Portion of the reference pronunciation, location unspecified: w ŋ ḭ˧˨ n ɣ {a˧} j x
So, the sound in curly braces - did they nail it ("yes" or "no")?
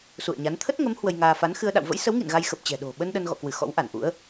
yes